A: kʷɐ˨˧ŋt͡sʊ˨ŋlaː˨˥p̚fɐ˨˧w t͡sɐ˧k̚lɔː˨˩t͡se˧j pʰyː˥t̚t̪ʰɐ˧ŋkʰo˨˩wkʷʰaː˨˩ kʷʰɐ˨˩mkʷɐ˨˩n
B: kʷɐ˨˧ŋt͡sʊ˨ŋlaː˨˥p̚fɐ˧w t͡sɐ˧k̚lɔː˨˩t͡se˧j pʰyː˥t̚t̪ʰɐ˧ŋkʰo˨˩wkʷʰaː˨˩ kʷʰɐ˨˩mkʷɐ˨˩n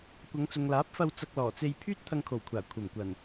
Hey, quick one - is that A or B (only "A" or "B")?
B